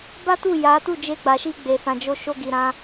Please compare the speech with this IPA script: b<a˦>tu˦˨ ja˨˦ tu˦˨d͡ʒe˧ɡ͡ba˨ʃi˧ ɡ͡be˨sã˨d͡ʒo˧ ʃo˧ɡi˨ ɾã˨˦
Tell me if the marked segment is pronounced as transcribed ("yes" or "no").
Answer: yes